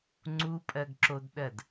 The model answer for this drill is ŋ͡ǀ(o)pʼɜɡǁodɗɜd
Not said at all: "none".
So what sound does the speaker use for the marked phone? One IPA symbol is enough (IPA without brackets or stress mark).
u